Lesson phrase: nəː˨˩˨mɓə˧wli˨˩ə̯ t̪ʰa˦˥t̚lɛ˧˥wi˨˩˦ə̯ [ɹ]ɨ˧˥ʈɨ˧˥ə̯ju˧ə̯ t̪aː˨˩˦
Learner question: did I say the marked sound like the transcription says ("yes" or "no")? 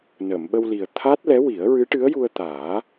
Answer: yes